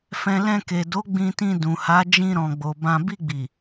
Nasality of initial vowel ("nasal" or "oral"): nasal